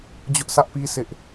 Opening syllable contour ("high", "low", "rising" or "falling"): high